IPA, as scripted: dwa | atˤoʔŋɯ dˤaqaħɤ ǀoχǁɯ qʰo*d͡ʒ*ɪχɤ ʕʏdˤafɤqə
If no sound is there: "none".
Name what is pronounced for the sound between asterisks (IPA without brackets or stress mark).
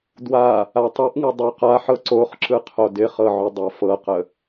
d